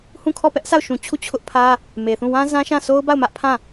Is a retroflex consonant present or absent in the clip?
absent